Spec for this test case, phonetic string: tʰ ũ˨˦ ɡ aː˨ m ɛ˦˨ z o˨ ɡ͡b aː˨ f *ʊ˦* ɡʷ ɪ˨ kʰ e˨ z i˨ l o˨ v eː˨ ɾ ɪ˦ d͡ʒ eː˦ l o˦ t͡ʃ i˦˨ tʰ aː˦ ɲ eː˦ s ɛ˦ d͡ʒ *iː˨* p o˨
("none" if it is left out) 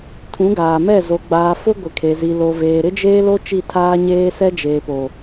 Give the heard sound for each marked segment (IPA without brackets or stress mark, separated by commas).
ʊ˦, eː˨